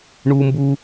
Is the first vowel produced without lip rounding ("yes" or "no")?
no